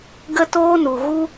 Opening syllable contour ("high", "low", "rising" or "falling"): high